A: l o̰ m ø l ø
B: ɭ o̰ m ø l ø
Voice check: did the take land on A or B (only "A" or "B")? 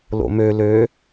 A